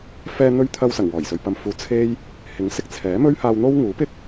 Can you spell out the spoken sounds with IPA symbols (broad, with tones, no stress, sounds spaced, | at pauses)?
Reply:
f ɛː˧ n̪ ɵ˧ ɥ t̪ʰ ɐ˧ w s ɐ˨˩ ŋ w ɔː˨˩ j s ɵ˨ ɥ p ɐ˧ m f uː˨˧ t͡sʰ e˥ j | h ɪ˨˥ ŋ s ɪ˧ k̚ t͡sʰ ɛː˨˥ m ɵ˥ ɥ h aː˧ w n̪ o˥ w ŋ uː˨˥ p ɪ˥ k̚